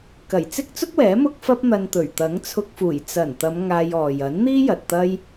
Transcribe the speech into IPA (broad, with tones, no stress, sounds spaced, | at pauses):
k ɐ˨˩ j t͡s ɪ˥ k̚ t͡s ʊ˥ k̚ w ɛː˨˥ m ʊ˥ k̚ f ɐ˥ p̚ n̪ ɐ˧ n t̪ ɵ˨˩ ɥ t̪ ɐ˨˥ ŋ t͡sʰ ʊ˧ k̚ f uː˨˩ j t͡s ɐ˨˩ n t̪ ɐ˨˧ m ŋ aː˧ j ɔː˨ j ɐ˨˥ n n̪ iː˥ j ɐ˨ t̚ t̪ ɐ˥ j